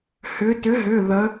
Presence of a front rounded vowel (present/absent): present